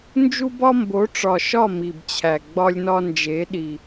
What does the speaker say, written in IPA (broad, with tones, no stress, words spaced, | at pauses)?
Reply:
nd͡ʒu˦bɒ˦mbo˨˦ ʈ͡ʂɒ˨ʃɒ˦˨ mi˨bt͡ɕʰæ˨ ɡ͡bɒ˦lʲnɒ˦nd͡ʒe˨˦ ɗi˨